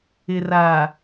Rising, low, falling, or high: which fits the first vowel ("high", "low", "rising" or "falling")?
low